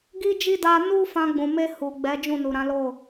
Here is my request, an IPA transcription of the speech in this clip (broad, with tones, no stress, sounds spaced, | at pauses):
ɡ i˦ d͡ʒ i˦ d a˧ n u˦ f ã˧ ɡ͡b ũ˨ m e˧ h u˨ ɡ͡b ɛ˨˦ d͡ʒ ũ˦˨ n u˨ ɾ ã˨˦ l o˦˨